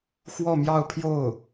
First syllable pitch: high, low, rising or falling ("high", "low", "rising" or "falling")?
falling